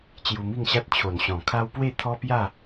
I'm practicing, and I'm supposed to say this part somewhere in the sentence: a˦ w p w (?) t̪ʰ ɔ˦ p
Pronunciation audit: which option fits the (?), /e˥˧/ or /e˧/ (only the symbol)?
e˥˧